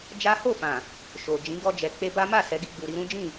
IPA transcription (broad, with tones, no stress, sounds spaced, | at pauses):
d͡ʒ a˦ h o˦˨ f ã˨ | ʃ o˨ d͡ʒ ĩ˨˦ ɡ ɔ˧ d͡ʒ ɛ˨ k͡p e˧ b a˦ m a˦˨ s ɛ˨˦ ɡ i˧ ɡ͡b u˨ ɾ i˧ ɾ ũ˦ d͡ʒ ĩ˦˨